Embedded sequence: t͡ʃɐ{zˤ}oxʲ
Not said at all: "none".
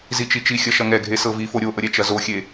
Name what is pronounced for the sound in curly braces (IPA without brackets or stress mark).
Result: z